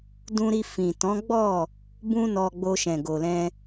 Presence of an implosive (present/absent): absent